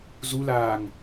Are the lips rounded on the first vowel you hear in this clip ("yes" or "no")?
yes